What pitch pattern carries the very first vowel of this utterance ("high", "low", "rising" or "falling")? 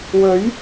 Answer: rising